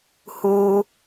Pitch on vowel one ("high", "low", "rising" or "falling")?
low